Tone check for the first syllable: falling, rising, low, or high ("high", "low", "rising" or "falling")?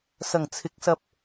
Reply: low